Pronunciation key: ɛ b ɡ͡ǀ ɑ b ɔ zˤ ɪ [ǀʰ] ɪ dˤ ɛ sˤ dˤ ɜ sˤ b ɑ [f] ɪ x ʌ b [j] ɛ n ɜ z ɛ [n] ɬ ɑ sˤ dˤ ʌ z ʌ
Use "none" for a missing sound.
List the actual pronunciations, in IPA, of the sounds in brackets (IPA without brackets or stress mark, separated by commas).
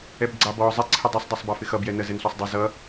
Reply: ǀʰ, f, j, n